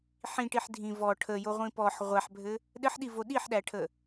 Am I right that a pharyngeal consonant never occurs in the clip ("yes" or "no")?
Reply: no